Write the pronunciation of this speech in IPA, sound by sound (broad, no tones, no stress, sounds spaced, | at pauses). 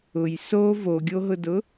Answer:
ʊ j s o v o ɡʲ o ɦ ʊ d ʊ